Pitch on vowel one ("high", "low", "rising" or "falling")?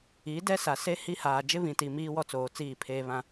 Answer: rising